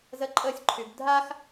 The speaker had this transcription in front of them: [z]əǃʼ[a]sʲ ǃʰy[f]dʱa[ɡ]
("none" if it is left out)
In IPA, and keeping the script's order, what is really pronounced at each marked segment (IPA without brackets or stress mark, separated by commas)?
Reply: z, ə, b, x